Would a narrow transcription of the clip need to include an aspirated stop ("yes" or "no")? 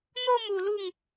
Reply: no